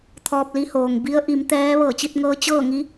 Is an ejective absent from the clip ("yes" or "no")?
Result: yes